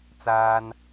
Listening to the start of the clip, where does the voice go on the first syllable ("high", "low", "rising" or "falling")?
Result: high